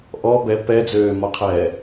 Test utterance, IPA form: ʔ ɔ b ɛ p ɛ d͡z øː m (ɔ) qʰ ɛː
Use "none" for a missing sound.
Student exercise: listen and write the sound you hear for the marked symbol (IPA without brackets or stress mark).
ɔ